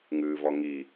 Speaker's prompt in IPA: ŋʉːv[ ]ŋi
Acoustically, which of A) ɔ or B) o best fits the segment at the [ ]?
A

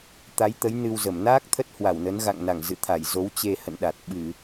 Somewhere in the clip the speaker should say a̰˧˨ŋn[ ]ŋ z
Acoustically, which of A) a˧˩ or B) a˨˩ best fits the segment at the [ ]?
A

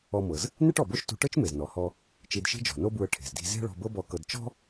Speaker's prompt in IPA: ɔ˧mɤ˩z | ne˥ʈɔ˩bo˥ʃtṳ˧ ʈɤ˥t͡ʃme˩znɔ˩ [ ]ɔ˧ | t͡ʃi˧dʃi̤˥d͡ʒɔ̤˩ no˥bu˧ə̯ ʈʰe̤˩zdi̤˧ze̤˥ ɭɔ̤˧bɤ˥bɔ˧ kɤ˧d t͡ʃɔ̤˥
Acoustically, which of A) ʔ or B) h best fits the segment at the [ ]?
B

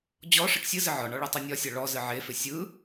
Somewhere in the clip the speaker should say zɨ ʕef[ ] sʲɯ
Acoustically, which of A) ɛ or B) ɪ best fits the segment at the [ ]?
B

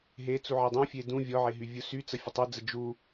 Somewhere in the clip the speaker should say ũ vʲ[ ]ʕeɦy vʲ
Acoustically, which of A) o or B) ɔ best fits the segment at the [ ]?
B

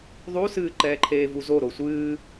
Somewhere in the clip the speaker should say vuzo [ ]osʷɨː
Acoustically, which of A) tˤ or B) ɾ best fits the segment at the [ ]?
B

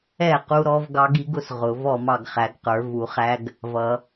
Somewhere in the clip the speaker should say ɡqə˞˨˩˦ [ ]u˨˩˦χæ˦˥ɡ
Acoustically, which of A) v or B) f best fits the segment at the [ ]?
A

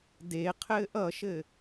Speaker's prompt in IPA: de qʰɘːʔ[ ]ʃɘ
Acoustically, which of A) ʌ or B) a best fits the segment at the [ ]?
A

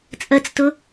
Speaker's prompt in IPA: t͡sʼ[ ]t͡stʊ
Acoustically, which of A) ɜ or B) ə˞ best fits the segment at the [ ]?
A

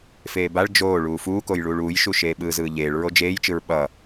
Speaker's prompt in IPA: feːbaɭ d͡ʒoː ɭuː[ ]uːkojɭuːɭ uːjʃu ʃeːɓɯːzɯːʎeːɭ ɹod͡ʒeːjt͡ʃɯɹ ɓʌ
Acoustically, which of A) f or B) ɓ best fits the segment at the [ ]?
A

